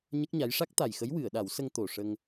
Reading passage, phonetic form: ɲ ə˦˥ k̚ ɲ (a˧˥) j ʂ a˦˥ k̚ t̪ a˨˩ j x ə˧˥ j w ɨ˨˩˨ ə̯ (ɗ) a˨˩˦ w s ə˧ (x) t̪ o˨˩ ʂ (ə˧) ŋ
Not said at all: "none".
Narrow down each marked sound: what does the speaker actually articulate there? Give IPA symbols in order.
a˧˥, ɗ, ŋ, ə˧

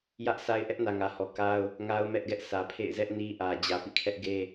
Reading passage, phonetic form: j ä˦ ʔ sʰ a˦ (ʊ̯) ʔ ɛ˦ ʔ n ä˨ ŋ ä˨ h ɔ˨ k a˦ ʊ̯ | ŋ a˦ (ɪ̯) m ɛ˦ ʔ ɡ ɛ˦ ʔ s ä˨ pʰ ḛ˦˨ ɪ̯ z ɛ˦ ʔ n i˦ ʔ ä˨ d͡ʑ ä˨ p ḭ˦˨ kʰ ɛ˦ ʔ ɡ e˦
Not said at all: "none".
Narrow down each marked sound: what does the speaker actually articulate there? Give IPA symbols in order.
ɪ̯, ʊ̯

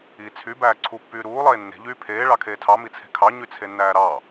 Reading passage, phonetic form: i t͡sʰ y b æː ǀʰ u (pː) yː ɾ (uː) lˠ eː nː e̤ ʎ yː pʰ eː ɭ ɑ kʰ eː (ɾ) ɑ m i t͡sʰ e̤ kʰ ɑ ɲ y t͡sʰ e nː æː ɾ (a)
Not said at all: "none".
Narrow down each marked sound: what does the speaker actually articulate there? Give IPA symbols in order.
pː, uː, tʰ, ɑ

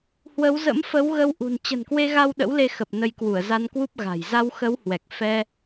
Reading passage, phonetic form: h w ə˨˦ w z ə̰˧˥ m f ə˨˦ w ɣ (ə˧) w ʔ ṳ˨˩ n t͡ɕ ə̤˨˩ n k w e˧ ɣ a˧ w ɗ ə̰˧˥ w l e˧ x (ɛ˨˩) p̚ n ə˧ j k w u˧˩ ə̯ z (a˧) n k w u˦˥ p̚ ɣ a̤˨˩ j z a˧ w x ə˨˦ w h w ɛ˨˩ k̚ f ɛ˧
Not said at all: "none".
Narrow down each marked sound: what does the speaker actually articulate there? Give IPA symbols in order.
ə˧, ə˨˩, a˧

